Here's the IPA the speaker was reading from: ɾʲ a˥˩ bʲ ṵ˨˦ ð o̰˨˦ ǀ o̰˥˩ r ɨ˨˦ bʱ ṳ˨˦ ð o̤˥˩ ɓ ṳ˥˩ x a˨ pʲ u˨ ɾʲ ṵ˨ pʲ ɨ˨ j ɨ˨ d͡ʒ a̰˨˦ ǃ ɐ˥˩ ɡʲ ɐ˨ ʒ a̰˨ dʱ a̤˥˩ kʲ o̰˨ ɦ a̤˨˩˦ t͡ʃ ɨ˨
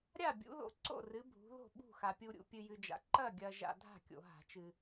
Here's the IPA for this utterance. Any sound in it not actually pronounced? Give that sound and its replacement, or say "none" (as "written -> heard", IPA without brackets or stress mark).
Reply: none